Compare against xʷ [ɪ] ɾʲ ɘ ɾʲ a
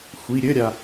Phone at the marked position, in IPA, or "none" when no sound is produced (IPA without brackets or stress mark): i